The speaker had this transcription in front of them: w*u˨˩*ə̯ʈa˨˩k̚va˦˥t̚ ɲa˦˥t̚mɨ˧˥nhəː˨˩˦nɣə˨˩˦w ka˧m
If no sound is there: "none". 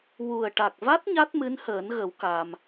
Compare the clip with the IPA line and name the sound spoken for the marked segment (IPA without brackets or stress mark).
u˨˩